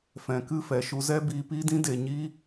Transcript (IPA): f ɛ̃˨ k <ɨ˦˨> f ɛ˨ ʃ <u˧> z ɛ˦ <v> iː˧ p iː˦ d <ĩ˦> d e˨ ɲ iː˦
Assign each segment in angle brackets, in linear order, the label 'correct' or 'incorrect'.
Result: correct, correct, incorrect, correct

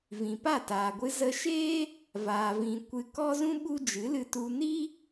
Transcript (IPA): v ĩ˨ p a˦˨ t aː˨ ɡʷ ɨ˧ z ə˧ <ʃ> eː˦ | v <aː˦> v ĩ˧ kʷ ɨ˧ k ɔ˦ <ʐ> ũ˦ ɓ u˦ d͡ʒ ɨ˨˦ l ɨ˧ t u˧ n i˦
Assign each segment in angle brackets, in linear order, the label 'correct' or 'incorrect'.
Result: correct, incorrect, incorrect

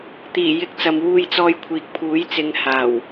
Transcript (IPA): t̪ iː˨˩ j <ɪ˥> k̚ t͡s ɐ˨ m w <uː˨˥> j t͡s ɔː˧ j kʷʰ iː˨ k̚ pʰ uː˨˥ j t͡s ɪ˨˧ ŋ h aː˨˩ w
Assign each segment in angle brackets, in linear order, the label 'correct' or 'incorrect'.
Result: incorrect, incorrect

